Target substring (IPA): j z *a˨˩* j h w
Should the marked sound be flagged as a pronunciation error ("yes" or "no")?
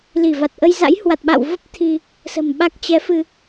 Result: yes